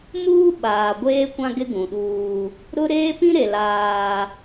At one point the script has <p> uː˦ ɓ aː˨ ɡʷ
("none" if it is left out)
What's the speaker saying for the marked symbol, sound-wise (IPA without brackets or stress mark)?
m